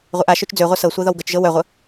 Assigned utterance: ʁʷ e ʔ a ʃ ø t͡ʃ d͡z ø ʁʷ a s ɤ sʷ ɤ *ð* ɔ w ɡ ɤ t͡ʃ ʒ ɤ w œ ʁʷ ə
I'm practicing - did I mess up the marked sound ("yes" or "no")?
no